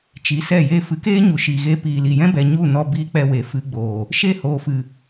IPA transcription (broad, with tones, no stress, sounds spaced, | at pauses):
t͡ʃ i˨˦ s ɛ˦˨ j eː˧ f ɨ˨˦ k eː˦ ɲ u˨ ʃ iː˨ ɣ e˧ p iː˨ l i˨ j ɛ̃˦ b ɛ˨ ɲ u˦˨ n ɔ˧ b iː˧ k͡p ɛ˧ w e˨ f ɨ˧ ɡ͡b oː˨ | ʃ e˦˨ h oː˨ f ɨ˨